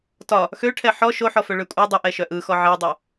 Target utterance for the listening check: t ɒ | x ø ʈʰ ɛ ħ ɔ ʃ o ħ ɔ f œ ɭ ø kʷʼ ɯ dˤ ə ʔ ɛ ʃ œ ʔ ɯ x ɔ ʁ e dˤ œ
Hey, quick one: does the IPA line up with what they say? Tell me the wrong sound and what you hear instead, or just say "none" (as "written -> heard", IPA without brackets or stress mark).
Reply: ʁ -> ʕ